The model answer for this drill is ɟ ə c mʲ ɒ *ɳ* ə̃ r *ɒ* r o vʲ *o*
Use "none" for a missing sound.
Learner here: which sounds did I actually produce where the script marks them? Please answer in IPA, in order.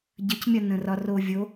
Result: n, ɒ, o

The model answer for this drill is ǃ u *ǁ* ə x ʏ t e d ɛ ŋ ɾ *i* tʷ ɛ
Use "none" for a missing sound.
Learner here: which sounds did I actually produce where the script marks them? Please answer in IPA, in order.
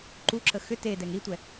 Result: ǁ, i

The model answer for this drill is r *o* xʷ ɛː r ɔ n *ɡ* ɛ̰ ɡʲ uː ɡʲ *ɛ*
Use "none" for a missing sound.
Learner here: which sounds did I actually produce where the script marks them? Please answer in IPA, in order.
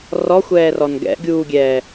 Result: ɔ, ɡ, ɛː

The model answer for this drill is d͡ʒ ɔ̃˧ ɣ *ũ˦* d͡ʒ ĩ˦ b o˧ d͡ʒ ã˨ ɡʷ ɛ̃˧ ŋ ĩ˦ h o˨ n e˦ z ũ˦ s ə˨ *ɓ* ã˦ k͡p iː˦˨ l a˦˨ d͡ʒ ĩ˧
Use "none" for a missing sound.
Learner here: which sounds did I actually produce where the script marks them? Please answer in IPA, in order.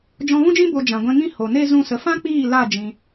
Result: ũ˦, f

